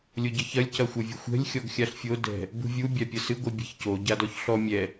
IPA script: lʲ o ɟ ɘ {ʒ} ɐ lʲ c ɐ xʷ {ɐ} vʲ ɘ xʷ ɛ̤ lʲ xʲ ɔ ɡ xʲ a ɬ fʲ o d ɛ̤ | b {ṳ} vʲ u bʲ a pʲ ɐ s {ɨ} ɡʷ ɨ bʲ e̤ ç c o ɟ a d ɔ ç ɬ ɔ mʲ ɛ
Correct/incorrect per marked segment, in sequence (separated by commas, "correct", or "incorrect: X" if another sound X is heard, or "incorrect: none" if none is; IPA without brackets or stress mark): incorrect: ç, correct, correct, correct